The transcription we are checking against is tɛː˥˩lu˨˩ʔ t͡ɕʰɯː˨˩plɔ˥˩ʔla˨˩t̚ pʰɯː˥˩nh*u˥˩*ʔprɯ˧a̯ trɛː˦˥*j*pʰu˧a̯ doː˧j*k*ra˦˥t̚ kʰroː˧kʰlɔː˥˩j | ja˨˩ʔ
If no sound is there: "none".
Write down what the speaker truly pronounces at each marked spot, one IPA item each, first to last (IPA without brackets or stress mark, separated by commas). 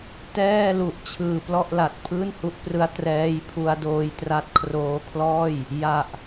u˦˥, j, t